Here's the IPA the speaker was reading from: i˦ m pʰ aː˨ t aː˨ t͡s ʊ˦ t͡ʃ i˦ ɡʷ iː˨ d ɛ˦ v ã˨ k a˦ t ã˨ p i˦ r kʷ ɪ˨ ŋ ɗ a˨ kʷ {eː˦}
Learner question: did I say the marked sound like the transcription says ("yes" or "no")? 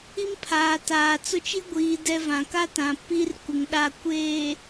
no